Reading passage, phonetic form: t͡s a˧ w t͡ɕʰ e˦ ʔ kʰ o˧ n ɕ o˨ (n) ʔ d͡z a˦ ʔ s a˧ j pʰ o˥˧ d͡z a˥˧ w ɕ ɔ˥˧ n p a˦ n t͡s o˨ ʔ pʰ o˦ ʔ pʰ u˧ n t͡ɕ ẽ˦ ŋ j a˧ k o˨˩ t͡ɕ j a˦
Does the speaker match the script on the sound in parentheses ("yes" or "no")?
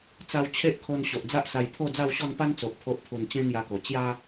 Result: no